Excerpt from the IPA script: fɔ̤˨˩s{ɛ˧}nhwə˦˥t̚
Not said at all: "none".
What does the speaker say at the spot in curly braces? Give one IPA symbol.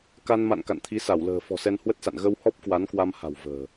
ɛ˧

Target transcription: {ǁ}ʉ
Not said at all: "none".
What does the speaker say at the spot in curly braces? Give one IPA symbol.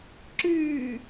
ǁ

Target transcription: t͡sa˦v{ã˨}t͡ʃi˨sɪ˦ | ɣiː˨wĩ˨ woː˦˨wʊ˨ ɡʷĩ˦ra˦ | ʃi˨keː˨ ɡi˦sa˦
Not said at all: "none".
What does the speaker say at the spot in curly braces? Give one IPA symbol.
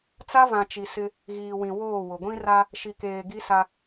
ã˨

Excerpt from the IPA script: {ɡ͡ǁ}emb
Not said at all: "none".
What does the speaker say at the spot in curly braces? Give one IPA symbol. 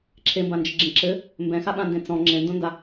ǁʰ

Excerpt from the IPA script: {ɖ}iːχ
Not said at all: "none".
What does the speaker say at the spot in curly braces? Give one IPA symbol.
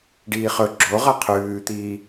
ɖ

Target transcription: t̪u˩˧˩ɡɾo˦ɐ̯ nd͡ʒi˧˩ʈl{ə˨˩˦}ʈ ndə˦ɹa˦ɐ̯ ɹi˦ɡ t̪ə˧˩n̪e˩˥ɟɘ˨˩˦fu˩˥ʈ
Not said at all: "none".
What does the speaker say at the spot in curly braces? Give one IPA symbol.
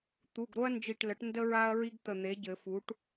ə˩˥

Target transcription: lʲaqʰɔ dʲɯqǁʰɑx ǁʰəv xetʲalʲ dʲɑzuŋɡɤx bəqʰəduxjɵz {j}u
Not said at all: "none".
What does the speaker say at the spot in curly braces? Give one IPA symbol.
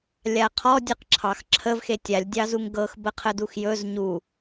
ɲ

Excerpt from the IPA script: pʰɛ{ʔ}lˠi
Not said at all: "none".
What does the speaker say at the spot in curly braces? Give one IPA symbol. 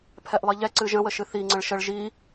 ʔ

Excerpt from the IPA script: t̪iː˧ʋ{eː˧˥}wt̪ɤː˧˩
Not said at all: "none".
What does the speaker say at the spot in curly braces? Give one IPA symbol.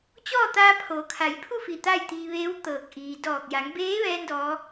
eː˧˥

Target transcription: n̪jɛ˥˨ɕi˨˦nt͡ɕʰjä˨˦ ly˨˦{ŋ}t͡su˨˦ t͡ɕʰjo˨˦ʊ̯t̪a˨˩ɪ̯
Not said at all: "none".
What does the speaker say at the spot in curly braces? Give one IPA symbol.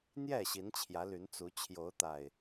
n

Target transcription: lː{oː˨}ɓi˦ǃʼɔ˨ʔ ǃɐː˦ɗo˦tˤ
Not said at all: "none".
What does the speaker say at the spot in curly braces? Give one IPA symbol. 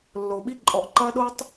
oː˨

